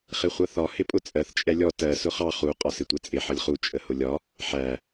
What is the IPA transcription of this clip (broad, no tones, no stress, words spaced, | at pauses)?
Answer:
χɪχʷʌθɒ hɪpʼʊt͡sʼɜθ t͡ʃʼɛlʲɔ tɜ sʊχɑ χu qʼɒsɪtʷɛt͡sʼɪ ħʌlʲχu t͡ʃʼəhʊlʲɒ | ħæ